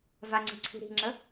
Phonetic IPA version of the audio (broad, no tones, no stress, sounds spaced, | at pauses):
v a ŋ͡ǀ i̤ ǀʰ i̤ ɾ i̤ ŋ͡ǁ ə